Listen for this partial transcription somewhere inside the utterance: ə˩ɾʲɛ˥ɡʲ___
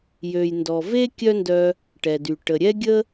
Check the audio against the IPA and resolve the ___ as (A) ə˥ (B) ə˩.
A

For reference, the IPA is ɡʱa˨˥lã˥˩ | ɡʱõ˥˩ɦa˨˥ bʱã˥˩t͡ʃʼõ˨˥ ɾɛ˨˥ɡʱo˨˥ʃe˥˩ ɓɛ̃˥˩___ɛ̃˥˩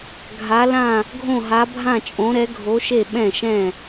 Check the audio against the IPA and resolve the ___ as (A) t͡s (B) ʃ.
B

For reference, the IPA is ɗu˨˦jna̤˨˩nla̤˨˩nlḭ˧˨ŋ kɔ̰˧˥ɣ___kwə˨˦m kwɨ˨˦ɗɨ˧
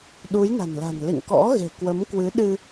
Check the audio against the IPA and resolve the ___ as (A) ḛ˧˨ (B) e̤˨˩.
B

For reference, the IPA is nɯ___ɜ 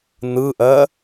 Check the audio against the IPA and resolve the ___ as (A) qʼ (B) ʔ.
B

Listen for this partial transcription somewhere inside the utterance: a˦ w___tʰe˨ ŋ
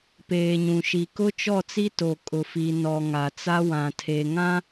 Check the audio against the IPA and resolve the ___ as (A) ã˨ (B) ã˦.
A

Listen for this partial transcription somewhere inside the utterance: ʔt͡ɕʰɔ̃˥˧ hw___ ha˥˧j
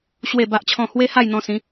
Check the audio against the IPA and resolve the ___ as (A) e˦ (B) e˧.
A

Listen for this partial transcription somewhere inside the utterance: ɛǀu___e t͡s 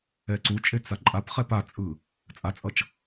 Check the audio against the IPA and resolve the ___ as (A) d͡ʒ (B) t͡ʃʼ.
B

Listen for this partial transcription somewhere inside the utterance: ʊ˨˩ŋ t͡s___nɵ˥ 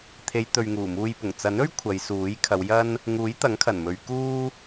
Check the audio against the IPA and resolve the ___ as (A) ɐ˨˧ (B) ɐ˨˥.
B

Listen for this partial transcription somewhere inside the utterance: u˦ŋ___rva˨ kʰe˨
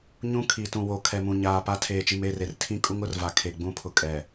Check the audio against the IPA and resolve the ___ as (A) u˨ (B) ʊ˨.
B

